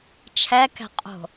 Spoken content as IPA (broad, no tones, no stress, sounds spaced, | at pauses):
t͡ʃʰ ɛ k ɛ̤ qʼ o̤